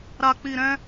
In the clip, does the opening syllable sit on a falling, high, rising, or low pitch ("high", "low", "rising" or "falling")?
low